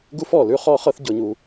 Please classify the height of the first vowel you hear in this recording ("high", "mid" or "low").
high